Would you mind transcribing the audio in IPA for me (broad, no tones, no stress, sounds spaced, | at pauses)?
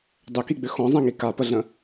dˤ ʏ k i ɡ͡b ʏ x ɔ̃ zˤ ɛ̃ ŋ i k a p ə ɮ ə̃